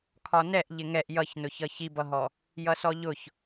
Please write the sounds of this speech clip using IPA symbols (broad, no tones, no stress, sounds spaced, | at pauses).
kʰ ɒ n ɛ ʔ ʎ ɪ ŋ ɛ ʔ j ʌ ç n ʊ ç ʌ ç i b ʌ ɦ ɔ | j ʌ s ɔ ʎ ʊ ç